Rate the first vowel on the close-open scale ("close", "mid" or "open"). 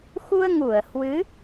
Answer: close